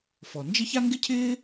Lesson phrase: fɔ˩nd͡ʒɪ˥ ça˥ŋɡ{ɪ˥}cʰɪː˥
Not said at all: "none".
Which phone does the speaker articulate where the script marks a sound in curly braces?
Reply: ɪ˥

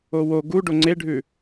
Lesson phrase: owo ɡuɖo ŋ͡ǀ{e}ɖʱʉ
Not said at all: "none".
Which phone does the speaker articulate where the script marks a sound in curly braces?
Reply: e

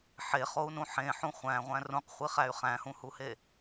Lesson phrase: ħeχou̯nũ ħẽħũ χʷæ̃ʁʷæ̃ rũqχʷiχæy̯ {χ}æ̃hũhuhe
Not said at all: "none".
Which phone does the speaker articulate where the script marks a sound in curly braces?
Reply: χ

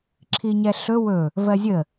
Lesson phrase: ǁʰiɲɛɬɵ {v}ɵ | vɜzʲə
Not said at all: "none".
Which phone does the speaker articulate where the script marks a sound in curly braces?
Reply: w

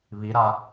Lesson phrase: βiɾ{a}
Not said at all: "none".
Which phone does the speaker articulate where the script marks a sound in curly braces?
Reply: a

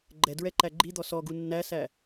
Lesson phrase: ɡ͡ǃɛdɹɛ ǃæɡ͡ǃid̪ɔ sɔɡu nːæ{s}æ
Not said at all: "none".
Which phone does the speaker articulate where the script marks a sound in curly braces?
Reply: s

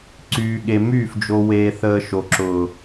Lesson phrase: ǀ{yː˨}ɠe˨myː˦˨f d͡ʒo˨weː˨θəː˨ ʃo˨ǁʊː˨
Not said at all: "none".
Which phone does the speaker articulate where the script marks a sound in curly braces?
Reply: yː˨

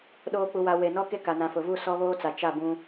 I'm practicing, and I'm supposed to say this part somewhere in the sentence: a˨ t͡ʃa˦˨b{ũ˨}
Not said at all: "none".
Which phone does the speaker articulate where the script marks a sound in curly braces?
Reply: ũ˦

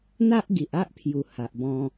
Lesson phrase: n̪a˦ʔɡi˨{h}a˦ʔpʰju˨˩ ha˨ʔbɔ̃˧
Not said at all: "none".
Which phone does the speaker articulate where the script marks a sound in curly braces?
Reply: ʔ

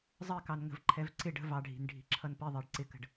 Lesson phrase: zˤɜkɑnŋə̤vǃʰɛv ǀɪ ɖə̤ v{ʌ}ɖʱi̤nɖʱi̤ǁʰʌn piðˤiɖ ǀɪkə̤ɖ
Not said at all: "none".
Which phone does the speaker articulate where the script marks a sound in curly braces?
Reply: ɑ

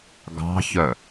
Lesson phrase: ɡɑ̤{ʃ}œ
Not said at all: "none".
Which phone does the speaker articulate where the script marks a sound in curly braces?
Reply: ç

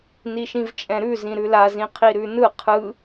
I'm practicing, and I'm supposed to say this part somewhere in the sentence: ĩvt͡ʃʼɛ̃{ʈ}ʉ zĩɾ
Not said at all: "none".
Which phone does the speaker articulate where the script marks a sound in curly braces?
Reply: ɾ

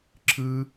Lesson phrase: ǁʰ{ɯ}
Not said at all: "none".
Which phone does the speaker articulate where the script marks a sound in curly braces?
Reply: ɯ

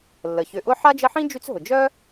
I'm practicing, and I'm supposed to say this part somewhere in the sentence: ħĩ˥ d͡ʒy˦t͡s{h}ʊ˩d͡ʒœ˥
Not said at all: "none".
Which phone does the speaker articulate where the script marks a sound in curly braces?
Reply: ɦ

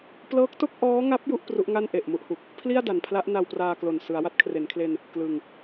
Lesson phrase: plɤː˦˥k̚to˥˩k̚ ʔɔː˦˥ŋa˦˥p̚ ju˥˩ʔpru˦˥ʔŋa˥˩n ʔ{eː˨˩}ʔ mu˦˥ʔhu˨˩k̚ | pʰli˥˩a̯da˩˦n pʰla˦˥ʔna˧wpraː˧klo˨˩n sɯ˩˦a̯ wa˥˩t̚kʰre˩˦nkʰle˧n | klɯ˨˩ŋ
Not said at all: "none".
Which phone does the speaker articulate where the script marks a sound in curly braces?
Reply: e˨˩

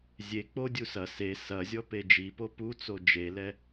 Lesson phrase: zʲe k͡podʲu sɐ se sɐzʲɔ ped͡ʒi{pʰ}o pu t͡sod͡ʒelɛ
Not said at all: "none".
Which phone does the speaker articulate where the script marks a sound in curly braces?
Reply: p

